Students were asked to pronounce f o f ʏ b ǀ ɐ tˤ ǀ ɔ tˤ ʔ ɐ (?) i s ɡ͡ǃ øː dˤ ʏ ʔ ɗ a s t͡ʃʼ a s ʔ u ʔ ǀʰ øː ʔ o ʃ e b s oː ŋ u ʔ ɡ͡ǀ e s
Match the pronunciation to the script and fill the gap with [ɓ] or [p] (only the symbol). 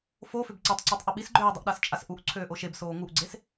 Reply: ɓ